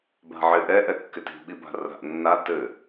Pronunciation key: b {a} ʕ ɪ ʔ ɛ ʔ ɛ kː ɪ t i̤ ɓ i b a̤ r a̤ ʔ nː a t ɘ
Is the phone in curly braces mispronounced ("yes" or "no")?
yes